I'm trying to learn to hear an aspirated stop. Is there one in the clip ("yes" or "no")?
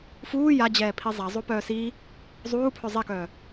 yes